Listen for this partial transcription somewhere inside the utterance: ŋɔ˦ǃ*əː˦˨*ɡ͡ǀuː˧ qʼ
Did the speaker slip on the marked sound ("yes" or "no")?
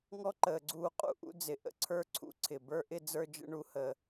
yes